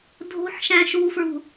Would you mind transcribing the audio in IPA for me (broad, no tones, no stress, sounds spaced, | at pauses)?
dʱ o̤ ħ ʃ æ̃ ʃ u f ɹ ṳ